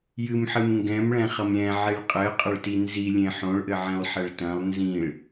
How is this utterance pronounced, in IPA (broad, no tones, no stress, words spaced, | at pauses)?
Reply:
jɨmħɨm ŋɡɛ̃mɭɛ̃χɐm ɾʲɛ̃ʕiɭ qʼɘqʼɐɭti nzilʲẽ ħõɭʔɘʕɛ̃lˠħɛɭ tɐ̃lˠ nzĩɭ